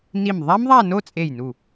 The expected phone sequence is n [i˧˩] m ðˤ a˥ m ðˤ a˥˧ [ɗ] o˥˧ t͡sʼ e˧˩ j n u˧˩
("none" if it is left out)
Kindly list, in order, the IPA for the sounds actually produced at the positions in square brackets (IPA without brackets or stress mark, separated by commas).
i˧˩, n